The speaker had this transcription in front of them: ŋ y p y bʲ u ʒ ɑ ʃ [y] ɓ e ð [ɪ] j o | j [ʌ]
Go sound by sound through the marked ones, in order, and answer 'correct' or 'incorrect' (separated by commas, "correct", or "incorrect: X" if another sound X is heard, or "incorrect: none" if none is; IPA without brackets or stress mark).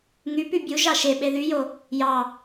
incorrect: e, incorrect: y, incorrect: ɑ